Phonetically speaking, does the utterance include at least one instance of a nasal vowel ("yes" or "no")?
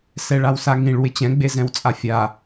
yes